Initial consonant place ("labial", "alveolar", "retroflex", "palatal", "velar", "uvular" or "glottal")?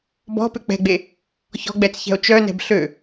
labial